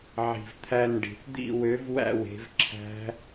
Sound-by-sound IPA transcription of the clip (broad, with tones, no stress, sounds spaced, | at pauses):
ʕ i̤˨˩ v t̪ʰ æ˦˨ n ɖ i̤˨˩ θ d̪ ḭ˦˨ w ø˨˦ v w æ̰˦˨ w e̤˨˦ v ǁʰ æ̤˦˥